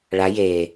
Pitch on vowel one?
rising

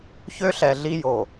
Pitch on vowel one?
high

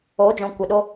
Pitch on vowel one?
rising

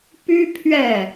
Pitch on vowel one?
high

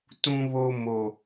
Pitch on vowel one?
high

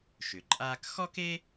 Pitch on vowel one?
low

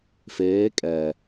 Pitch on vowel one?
rising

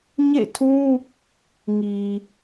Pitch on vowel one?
falling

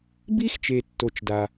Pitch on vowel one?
high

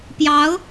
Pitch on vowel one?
rising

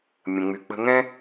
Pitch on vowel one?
low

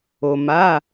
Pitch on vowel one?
low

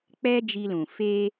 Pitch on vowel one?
high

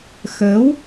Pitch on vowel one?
rising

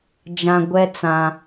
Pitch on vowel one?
high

